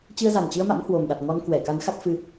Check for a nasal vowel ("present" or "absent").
absent